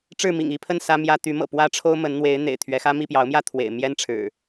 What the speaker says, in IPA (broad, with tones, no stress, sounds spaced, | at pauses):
ʈ͡ʂ ɻ̩˥˨ m ḭ˨˩ ŋ i˥˨ pʰ ə˥˨ n s ä˦ m j ä˦ t̪ y˨˦ m ɤ̰˨˩ p w ä˦ ʈ͡ʂʰ o˦ ʊ̯ m ə˨˦ n n̪ w e˨˦ ɪ̯ n̪ ḛ˨˩ ɪ̯ t̪ʰ ɥ ɛ˨˦ x ä˦ m i˥˨ p j ɑ˨˦ ʊ̯ m j ä˥˨ t̪ʰ w ḛ˨˩ ɪ̯ m j ɛ˦ n ʈ͡ʂʰ ɻ̩˨˩